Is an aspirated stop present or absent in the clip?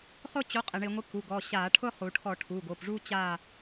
present